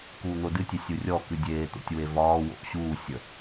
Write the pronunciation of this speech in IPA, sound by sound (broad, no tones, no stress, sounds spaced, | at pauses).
k uː n̪ o d ɨ tʲ e sʲ u rʲ ɔ k ɨ dʲ eː t̪ o̰ tʲ w e v ɒː w o̰ ʔ ɕ uː sʲ ə